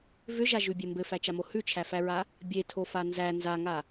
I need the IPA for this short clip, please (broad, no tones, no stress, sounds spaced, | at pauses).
v ʏ ʒ a ʒ ʉ bʲ e m b ɘ f æ t͡ʃ a m o h ʉ t͡ʃʰ æ f æ ɹ a | bʲ e tʰ o f a n z æ n z a ŋ a